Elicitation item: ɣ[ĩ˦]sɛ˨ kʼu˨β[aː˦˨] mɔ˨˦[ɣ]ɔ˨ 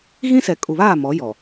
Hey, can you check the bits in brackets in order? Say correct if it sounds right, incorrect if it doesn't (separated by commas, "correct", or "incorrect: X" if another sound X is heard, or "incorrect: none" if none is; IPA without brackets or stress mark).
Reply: correct, correct, incorrect: j